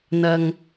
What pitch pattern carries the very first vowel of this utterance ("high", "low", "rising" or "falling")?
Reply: high